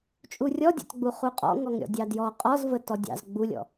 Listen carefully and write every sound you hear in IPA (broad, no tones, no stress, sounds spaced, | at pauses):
t͡ʃʼ u rʲ ɔ dʲ ɑ̰ t ɡ͡b u χ u qʼ ɔ̰ ŋ ɔ ŋ ɾʲ ɔ̰ dʲ ɑ d j ɔ qʼ ɔ z v ə t ɔ dʲ ɑ̰ z ɡ͡b u lʲ ɔ̰